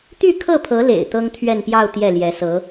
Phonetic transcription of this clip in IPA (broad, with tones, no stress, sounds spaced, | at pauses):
t̪ y˥˧ kʰ ɤ˥˩ pʰ ɤ˧˥ l ḛ˨˩ ɪ̯ t̪ ɤ˥ ŋ t̪ʰ ɥ ɛ˥˧ n p j ɑ˥˧ ʊ̯ t̪ j ɛ˥˩ l j ɛ˧˥ s ɤ˧˥